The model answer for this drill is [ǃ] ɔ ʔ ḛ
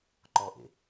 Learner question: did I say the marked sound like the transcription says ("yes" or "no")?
yes